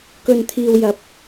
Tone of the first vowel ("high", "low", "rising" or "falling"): low